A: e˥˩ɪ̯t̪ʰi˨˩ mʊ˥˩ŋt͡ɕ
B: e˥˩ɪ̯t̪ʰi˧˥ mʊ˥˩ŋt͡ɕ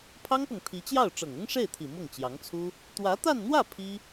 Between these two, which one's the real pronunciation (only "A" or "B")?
A